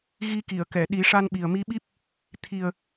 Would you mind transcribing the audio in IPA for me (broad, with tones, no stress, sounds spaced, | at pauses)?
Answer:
ɣ i˧ k i˨˩˨ ə̯ k ɛ˨˩˨ ɗ i˨˩˦ ʂ a˧ n ɓ i˨˩ ə̯ m i˧˥ ɓ i˦˥ p̚ | t̪ʰ i˨˩ ə̯